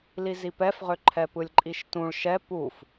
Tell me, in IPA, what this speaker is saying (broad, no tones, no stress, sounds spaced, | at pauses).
l i z i p ɛ f ʁ ʏ ǃʰ ɛ p ɯ lʲ ǃʼ i ʃ t ũ ɭ ʃ ɛ p u f